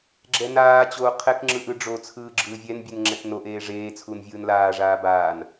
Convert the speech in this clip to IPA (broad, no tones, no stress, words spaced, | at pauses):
ɡ͡ǁɛnaːt͡ɕoː qʰɛkŋ͡ǁɯʔ ɯɖ͡ʐot͡sʰɯː ɡ͡ǁɯːvʲɛnbʲɯn ŋ͡ǁɛknoʔeː ʐeː t͡sʰunvʲɯːnlaːʐaː baːn